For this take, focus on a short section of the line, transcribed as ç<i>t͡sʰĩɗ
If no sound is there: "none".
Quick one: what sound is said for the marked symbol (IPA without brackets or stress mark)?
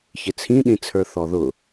ɪ